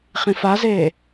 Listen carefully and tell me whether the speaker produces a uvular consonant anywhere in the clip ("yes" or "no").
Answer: yes